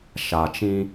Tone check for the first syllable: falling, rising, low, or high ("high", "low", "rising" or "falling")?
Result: low